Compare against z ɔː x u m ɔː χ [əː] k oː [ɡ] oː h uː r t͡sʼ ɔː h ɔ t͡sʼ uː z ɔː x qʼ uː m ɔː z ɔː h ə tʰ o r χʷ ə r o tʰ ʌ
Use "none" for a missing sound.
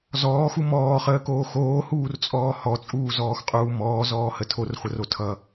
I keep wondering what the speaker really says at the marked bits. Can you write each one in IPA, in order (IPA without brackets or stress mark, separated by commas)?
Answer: əː, x